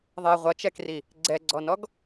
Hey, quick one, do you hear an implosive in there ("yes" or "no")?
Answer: no